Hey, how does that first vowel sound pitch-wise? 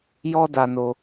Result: high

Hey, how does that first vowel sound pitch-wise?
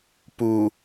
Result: low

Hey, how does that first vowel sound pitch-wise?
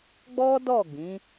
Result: high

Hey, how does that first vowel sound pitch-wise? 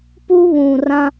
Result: high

